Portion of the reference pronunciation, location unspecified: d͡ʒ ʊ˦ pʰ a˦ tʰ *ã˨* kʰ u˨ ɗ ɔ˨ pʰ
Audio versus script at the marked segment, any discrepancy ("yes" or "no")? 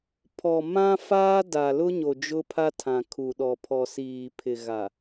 no